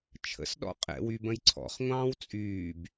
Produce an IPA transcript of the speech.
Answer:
t͡ʃʰə̰sɗɔ̰ qʼɛ̰wybə̃j ǀʰɔ̰χŋʷɑ̃ːw t͡sʼyːb

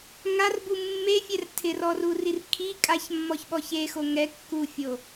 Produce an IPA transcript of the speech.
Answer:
ŋarbu mːefʲɛr tʰɪrɔrurir kʰi kʼaçmːɔçɓɔç exo ŋɛ kːufʲo

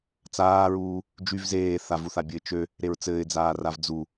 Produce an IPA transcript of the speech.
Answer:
t͡saːɹuː | d͡ʒyv zeː θavuθabʲɘɪ̯ t͡ʃø | ɾeɹt͡sɘːɪ̯d͡zaː ravd͡zu

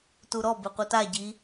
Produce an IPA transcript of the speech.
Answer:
tuɾɔ beqʷɨta ɟi

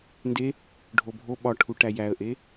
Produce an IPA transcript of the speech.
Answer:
nde | ɖʱobʱo ɓɒʈʰuʈæ jæə̯ʔe

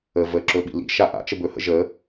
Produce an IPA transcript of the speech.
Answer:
ə vəǁɵ ɓḭlḭ ʃaʔa̰ t͡ʃəbɵhə̰ ʒə

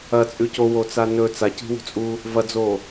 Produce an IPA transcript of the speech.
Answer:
ɐt͡sʼʉ cowot͡sa nɵ t͡saci̤wṳt͡sʼuː | vɐd͡zoː

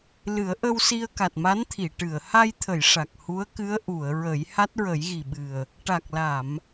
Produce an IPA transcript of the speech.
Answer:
lɨ˨˩˦ə̯ʔə˧wsi˧ə̯ ka˨˩t̚ma˧˥nt̪ʰi˨˩˨ ʈɨ˨˩˨ə̯ ha˧jt̪ʰə˨˩˨j ʂa˨˩k̚hu˧˥ə̯kɨ˧˥ə̯ ʔu˨˩˨ə̯ɹə˨˩˦j ha˦˥t̚ɹə˨˩˦jɣi˨˩ ɓɨ˨˩ə̯ | ʈa˨˩k̚la˨˩˨m

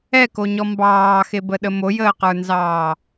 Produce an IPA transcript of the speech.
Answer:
ɛkoɲɔ mbɑːxebəɗə mojəːqə˞nzɑː

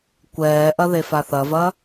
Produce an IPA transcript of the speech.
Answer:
kʷɛːʔɐðe faθɐvɐː

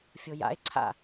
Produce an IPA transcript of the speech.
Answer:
fʲoja̰e̯ ǀʰa̰

